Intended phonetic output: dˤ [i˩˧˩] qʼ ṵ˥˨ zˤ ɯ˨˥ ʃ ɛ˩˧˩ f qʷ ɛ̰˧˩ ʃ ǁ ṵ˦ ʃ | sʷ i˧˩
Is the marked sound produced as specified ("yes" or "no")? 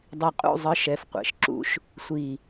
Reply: no